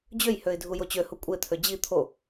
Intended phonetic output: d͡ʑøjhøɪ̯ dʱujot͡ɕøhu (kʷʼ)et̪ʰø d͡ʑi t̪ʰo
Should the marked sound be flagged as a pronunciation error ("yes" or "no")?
no